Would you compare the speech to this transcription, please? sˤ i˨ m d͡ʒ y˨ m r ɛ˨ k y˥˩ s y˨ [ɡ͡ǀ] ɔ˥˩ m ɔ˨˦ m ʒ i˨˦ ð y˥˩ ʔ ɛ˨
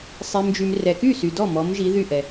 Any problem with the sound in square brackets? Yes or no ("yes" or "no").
yes